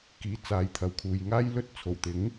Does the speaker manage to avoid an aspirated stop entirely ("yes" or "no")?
no